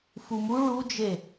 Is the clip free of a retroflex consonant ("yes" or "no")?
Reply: no